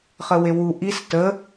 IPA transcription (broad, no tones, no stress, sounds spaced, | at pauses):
χ ə w e w u ʔ i s t ə